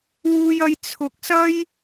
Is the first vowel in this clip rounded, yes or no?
yes